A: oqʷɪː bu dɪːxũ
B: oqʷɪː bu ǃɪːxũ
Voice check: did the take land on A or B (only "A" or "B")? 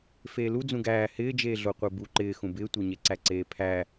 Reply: B